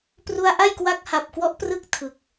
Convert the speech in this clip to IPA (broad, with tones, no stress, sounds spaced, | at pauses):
p r u˧ a̯ ʔ a˥˩ j k w a˦˥ k̚ h a˨˩ p̚ k w ɔ˦˥ ʔ p r ɯ˦˥ k̚ tʰ ɯ˨˩ k̚